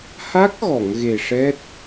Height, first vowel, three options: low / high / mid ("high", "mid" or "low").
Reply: low